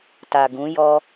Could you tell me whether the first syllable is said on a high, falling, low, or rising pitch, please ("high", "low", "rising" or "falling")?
low